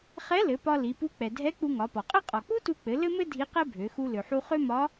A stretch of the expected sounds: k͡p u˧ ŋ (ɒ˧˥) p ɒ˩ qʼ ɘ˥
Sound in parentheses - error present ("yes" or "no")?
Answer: yes